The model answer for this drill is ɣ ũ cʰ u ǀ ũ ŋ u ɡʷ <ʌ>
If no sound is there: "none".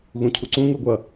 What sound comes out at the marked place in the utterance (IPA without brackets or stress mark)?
ʌ